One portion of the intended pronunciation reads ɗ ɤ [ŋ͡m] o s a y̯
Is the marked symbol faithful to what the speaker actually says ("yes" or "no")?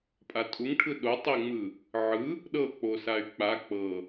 no